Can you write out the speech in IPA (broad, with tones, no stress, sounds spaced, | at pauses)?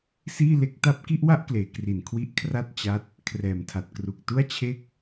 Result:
s iː˥˩ l e˦˥ k̚ t a˥˩ p̚ k i˥˩ ʔ w a˥˩ ʔ k l eː˩˦ k r i˨˩ n kʰ w i˦˥ ʔ kʰ r a˥˩ t̚ t͡ɕ a˥˩ t̚ | kʰ r ɛː˨˩ m tʰ a˨˩ t̚ k r u˨˩ k̚ t u˥˩ a̯ t͡ɕʰ e˥˩ k̚